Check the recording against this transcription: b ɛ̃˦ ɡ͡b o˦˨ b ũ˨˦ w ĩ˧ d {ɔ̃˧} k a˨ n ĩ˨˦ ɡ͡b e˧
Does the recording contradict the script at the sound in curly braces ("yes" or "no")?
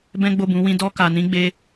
yes